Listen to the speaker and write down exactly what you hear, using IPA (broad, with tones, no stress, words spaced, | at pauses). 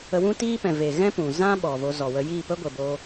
ə˧wũ˦tiː˦pɛ̃˨ ve˨ɣɛ̃˦ pũ˨zã˦ ɓɔ˨ vo˧zɔ˨wə˧ jiː˦˨pə˦ɡʷə˨ bo˧